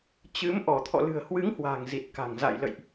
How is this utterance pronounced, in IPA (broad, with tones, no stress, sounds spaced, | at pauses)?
t͡ɕ ɨ˨˦ m ʔ ɔ˧˩ t̪ʰ ɔ̰˧˨ l ɨ̤˨˩ ə̯ h w ɨ˨˦ ŋ h w a̤˨˩ ŋ z i˨˩ t̚ k a̤˨˩ ŋ z a̰˧˨ j l ə̰˧˨ j ʔ